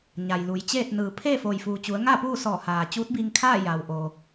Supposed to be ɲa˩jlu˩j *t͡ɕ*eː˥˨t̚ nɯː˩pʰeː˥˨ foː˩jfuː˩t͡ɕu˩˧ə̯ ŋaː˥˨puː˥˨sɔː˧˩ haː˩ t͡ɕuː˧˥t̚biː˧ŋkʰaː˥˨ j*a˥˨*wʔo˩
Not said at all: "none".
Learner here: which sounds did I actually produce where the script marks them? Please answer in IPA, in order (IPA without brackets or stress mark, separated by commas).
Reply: t͡ɕ, a˩